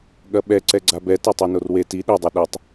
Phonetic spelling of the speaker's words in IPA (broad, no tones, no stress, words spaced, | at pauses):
ɠɐɓɛǀɛɡ͡ǀa bɛ tetˤonorwe ti ɗedˤɛ ɗɐtˤ